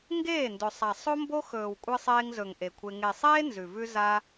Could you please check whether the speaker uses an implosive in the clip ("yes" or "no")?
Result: no